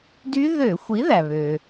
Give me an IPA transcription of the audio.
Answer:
d y˦˥ ð ø˧˩˧ xʷ i˨˥ ð æ˩ β ø˩

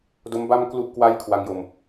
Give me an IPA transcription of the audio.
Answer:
d o˦˥ m b a˥˩ m k l u˥˩ ʔ k w a˥˩ j kʰ w a˦˥ ŋ j o˧ m

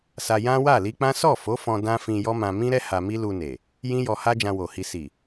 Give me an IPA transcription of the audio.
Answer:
s a˧ j ã˦ w a˦˨ l i˧ k͡p ã˦ s ɔ˦˨ f o˨˦ f ɔ̃˧ d ã˦ f ĩ˧ j ɔ˦ m ã˧ m ĩ˦ ɾ ɛ˦ h a˧ m i˦ l u˧ n e˨ | j ĩ˦ j ɔ˧ h a˦ d͡ʒ ã˧ w o˨ h i˧ s i˨

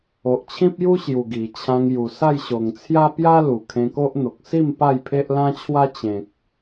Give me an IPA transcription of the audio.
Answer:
o˨ ʔ t͡ɕʰ ĩ˦ p̚ j u˦ ɕ j u˨˩ ɡ i˨˩ t͡ɕʰ ã˧ ŋ j u˨˩ s a˥˧ j ɕ o˨˩ ŋ t͡sʰ j a˦ p j a˦ l u˨˩ kʰ ẽ˧ k o˦ ʔ n̪ o˨ k̚ s i˥˧ m p a˥˧ j pʰ e˦ ʔ l ã˦ t͡ɕʰ w a˦ t͡ɕ ẽ˨ k̚

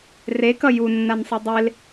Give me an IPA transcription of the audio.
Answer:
r e k ʌ j u nː a n sˤ ɯ dˤ e l

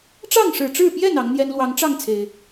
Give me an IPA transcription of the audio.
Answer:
ʈ͡ʂ ɑ˥˨ ŋ ʂ ɻ̩˨˩ ʈ͡ʂ ɻ̩˥˨ p j ɛ˥˨ n ɑ˨˦ ŋ n̪ j ɛ˦ n l w ɑ˨˦ ŋ ʈ͡ʂ ɑ˥˨ ŋ t͡sʰ e˨˩ ɪ̯

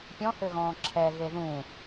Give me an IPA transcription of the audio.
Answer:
pʲ ɔ̃ h ø ɣ ɔ̃ː ǁʰ ɛ ɣ e ð ũ

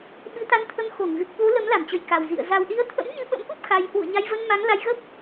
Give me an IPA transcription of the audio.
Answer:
ɓ ɨ˧ t̪ a˧ n t̪ʰ ə˧ m x o˧˩ ŋ ɣ ɨ˨˩ k̚ ɓ o˨˦ l ə˨˦ m l a˧˩ m t͡ɕ ə˨˩ j k a˨˩ w z ḭ˧˨ ə̯ z a˨˩ w ɗ i˨˦ ə̯ t̪ʰ ə̰˧˥ m ɲ ɨ˧ ɓ ə̰˧˥ m ʔ u˦˥ p̚ x a˧ j h w ṵ˧˨ ə̯ ɲ a˧ j v ə˧ n m a˨˦ ŋ l a˧ j ɣ ə˦˥ p̚

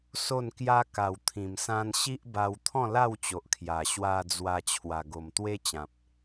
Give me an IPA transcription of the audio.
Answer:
s o˥˧ n k j a˦ k a˨˩ w t̪ʰ ĩ˨˩ m s ã˦ n ɕ i˦ ʔ b a˧ w t̪ʰ ɔ̃˥˧ l a˥˧ w t͡ɕ o˨ ʔ kʰ j a˨˩ ɕ w a˧ d͡z w a˧ t͡ɕʰ w a˧ ɡ o˧ m t̪ w e˦ t͡ɕ ã˨ p̚

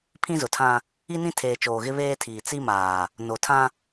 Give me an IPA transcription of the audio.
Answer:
pʰ ĩ˦ z ʊ˨ tʰ ã˦ | i˦ n ĩ˦ tʰ eː˨ t͡ʃ oː˨ ɣ ɪ˦ β eː˦ tʰ iː˨ t͡s i˦ m aː˨ | n o˨ tʰ ã˦

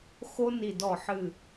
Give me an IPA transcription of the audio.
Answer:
x o˦ n i˨˩ d ɔ˨˩ ħ ɨ˨˩

